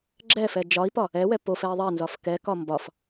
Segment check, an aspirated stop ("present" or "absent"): absent